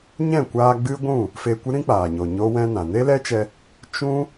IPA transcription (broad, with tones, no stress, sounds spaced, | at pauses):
ɲ ɛ̃˦˨ kʷ aː˧ ɡ͡b ɨ˦ ɡʷ ũ˦˨ | f e˧ kʷ ɨ˦ ɾ ĩ˦ k͡p aː˨ ɲ o˨ ɲ o˦ w ɛ̃˦ n ã˨ n e˦ l ɛ˦ t͡ʃ ɛ˧ | t͡ʃ ũ˦